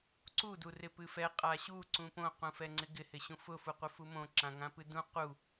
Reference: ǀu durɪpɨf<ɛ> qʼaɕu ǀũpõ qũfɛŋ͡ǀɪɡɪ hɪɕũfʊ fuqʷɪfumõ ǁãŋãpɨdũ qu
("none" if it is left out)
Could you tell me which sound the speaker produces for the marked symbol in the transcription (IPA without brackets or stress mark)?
ɛ